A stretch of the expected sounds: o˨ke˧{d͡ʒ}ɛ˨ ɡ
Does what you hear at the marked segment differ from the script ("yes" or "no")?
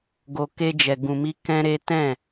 no